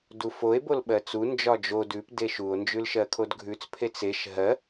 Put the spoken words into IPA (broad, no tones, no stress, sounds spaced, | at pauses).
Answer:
d u f o e̯ b o l ɓ ɜ t͡s u n d͡ʒ ɒ d͡ʒ o d ʉ p d e ʃ u o̯ n d͡ʒ ʉ l ʃ ɜ kʰ o d ɡʱ ʉ t͡s pʰ e t͡s e ʃ ɦ ɜ